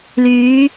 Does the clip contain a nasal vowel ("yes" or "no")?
no